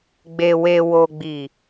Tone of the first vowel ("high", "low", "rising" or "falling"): low